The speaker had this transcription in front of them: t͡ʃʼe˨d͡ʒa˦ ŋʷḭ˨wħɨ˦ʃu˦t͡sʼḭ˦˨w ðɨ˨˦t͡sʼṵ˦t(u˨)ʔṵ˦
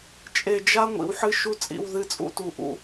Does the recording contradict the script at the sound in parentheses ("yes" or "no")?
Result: no